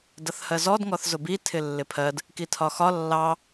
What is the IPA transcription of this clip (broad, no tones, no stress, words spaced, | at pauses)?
dʌθhɜzɔd ŋɔθzʊbi tʰɪlːɪpʰɜd | kitʰɒxɒ lːɑ